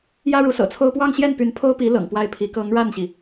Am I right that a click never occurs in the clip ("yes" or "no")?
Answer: yes